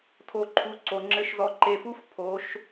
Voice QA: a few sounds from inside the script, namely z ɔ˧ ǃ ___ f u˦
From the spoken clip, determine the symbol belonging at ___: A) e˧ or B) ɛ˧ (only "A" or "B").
A